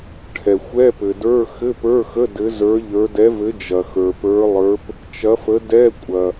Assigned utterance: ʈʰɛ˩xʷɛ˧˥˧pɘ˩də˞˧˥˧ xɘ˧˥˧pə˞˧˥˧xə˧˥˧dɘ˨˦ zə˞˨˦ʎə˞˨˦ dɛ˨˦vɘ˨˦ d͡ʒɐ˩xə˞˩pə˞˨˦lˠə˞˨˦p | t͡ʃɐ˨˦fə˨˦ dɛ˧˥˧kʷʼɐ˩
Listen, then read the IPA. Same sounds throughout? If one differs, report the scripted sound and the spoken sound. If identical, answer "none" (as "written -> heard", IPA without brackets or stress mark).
none